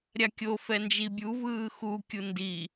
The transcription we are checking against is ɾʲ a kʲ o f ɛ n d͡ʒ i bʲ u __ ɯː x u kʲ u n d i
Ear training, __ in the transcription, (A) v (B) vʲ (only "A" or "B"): A